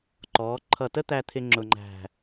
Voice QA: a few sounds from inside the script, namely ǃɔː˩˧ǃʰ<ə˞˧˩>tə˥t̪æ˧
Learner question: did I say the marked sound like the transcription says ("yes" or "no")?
no